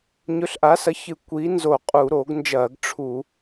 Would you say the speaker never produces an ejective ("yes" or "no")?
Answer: no